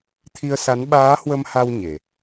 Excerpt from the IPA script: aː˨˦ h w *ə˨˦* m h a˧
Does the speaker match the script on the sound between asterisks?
no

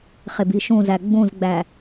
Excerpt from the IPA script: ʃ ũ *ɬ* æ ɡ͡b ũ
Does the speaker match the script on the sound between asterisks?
no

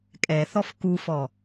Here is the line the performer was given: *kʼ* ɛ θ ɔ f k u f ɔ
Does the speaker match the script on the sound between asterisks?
yes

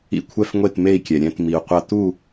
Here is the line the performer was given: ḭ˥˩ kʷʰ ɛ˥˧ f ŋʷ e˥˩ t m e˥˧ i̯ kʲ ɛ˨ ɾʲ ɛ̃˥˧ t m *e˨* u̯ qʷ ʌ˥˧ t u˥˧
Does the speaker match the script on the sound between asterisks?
no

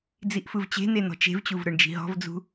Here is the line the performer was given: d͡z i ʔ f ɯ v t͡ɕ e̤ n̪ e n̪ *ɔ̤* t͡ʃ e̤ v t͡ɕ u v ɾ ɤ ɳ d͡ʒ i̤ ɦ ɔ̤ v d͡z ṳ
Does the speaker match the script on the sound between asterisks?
yes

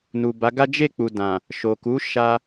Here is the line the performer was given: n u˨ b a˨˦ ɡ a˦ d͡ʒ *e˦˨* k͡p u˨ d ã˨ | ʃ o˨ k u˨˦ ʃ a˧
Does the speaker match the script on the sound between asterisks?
yes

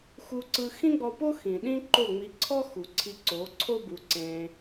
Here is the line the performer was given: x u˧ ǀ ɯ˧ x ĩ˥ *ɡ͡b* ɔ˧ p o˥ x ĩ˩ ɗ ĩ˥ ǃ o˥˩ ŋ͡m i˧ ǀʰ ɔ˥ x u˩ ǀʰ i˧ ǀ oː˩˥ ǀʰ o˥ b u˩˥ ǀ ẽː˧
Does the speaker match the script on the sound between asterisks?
yes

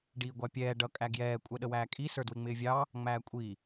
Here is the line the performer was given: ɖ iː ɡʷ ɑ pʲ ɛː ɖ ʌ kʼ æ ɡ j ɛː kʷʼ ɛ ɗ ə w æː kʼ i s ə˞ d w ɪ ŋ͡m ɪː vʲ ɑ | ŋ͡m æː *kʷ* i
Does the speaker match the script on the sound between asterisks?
no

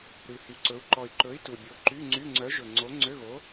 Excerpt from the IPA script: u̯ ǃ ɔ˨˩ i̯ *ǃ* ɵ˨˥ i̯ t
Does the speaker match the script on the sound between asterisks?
yes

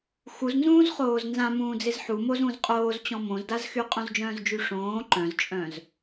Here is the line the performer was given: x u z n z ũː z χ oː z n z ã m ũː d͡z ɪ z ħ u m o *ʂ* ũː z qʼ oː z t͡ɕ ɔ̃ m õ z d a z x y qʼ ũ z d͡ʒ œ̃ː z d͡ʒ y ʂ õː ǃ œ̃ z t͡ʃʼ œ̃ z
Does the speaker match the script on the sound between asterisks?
no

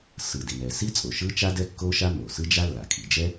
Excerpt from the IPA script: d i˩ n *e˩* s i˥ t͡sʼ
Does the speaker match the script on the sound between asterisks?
no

